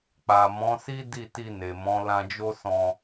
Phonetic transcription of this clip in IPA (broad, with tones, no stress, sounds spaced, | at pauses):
k͡p a˨ m ɔ̃˨˦ s i˦ d i˦˨ t i˧ n e˨ m ɔ̃˨˦ l ã˧ d͡ʒ o˦ s ɔ̃˧